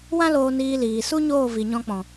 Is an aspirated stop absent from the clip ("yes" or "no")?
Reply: yes